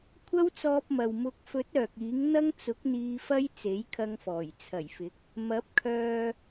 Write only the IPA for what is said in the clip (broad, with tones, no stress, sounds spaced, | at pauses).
kʷʰ ɐ˥ w t͡s ɔː˧ p̚ m ɐ˨ w m ʊ˨˥ k̚ f ɵ˨˥ t̚ œː˨ k̚ iː˨˥ ŋ n̪ ɐ˥ ŋ t͡s ʊ˨˥ k̚ n̪ iː˧ f ɐ˥ j t͡s e˨˥ j kʰ ɐ˧ ŋ f ɔː˨˩ j t͡sʰ ɐ˨˩ j f ɪ˨˥ k̚ | m ɐ˨˥ p̚ kʰ œː˧